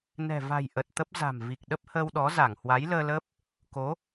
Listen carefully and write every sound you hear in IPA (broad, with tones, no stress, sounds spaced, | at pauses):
n ɛ̤˨˩ v a̤˨˩ j ʔ ə˨˩ t̚ t̪ ə˦˥ p̚ z a̤˨˩ m v i˨˩ k̚ ɗ ə˦˥ p̚ h əː˧ w ɗ ɔ˨˦ z a˧˩ ŋ h w a˨˦ j l əː˧ l əː˦˥ p̚ | k o˨˦